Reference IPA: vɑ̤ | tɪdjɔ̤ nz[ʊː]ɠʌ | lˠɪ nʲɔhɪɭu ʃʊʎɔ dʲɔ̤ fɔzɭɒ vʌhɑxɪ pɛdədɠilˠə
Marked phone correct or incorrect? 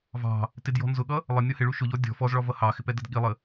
incorrect